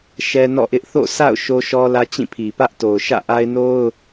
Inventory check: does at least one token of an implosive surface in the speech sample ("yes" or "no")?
no